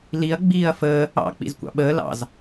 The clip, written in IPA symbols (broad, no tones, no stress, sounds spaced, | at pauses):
l i ɐ̯ ɡ͡b iː ɐ̯ f əː | ɑ̰ k͡p ḭ z kʷ ɑ̰ ɓ əː l ɑ̰ z